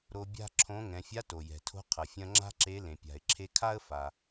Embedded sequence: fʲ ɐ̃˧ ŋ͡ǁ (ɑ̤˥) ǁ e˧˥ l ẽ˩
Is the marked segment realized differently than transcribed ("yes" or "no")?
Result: yes